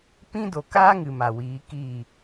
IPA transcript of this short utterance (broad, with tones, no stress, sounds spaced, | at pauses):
p ĩ˦ d o˨ k aː˦ ŋ ɨ˨ m a˨ w iː˨˦ k iː˦˨